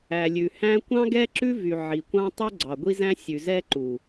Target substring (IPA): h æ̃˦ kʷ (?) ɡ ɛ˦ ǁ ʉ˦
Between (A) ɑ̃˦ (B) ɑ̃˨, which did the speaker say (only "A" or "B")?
A